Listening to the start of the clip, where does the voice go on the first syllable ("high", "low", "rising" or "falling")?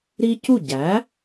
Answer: high